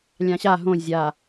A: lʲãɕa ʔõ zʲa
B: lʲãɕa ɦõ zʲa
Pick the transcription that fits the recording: B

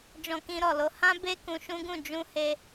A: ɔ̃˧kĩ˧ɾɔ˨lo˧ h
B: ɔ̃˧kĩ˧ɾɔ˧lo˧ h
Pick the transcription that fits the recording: A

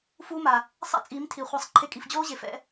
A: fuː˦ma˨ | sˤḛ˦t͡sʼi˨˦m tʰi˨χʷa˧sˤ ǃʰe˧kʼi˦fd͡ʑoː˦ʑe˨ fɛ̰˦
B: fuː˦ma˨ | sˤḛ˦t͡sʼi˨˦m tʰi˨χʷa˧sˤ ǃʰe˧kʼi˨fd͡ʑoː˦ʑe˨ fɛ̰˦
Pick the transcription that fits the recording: B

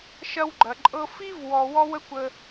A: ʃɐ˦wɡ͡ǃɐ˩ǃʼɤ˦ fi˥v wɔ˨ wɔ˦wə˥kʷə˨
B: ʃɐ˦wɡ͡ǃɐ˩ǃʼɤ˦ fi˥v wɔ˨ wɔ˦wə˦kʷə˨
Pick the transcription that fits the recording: B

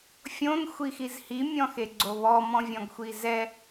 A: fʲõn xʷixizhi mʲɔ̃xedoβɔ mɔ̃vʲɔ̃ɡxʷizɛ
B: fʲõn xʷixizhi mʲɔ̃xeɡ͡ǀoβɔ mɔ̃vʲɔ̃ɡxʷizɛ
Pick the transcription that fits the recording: B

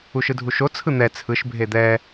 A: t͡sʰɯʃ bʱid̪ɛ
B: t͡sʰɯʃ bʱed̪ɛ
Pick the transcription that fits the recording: B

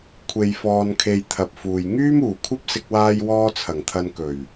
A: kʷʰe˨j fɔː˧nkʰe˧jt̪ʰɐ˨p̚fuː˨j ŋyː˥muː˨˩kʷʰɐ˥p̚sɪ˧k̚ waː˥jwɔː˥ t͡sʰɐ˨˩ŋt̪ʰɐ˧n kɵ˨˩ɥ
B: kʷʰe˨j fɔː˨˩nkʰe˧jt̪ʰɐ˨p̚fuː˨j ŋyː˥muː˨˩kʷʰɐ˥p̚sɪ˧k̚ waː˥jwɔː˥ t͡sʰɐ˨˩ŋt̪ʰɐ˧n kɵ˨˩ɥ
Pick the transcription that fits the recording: A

